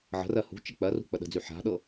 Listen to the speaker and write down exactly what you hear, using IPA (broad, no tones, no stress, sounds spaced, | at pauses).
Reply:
ʕ ə̤ r ɜ h ṳ t͡ʃ ə k͡p ɜ r ṳ k͡p ə ɗ ə̤ d͡z y ħ a̤ ɗ ɤ